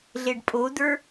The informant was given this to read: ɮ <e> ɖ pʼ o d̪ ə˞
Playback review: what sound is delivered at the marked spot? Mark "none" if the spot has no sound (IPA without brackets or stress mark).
e